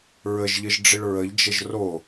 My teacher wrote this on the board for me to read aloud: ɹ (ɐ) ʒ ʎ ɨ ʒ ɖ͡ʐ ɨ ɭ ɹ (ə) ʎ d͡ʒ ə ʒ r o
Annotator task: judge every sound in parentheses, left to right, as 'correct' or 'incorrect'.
incorrect: ə, correct

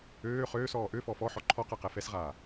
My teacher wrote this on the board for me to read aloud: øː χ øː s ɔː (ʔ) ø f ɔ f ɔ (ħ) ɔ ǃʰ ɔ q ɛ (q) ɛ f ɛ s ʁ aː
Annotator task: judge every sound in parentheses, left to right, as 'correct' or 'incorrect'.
correct, correct, correct

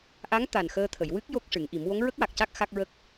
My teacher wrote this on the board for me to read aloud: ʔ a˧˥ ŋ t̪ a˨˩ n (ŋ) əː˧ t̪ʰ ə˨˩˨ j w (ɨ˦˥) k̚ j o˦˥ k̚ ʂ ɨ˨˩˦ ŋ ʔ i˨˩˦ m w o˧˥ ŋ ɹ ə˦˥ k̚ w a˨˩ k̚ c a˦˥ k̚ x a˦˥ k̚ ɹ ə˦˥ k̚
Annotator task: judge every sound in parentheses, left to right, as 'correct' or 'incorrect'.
incorrect: x, correct

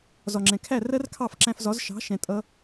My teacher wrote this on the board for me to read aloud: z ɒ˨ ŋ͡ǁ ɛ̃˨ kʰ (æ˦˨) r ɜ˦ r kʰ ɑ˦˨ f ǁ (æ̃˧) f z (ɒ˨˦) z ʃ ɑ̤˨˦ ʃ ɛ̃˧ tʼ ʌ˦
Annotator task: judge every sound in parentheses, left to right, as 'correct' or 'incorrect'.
correct, correct, correct

